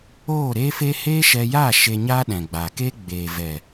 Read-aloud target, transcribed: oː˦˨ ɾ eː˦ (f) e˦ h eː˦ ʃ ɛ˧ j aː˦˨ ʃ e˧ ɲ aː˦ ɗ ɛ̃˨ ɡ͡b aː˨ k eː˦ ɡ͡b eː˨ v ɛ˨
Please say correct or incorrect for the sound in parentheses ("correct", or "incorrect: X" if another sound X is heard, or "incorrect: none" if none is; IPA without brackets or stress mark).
correct